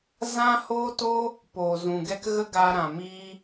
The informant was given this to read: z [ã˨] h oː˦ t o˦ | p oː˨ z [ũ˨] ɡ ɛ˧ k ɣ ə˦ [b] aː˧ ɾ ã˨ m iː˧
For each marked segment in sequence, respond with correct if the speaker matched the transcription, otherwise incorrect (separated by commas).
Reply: incorrect, correct, incorrect